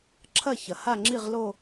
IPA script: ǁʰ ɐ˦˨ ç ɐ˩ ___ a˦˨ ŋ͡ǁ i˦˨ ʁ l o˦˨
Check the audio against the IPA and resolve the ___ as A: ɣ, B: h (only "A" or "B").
B